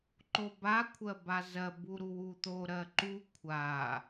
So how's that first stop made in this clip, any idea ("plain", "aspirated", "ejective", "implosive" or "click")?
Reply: click